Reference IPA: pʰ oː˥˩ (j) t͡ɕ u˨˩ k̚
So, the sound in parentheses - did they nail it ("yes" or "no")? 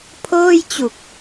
yes